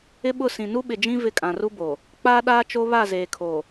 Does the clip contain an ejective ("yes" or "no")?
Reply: yes